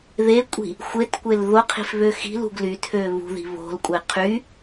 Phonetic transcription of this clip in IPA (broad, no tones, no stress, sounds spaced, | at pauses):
ð e kʷʼ i̤ | xʷ e t kʷ e l ð o qʰ i̤ f β ø x i̤ l ṳ ɡ l y tʰ ø β ṳ ð i̤ β o̤ l kʷʼ e qʰ y